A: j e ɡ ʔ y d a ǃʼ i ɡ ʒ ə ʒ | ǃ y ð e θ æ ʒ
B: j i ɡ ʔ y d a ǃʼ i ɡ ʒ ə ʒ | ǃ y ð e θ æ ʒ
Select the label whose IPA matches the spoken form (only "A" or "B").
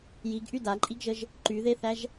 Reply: B